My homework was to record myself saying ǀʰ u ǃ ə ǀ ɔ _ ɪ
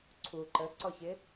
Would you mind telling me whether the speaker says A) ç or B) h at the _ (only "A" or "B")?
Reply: A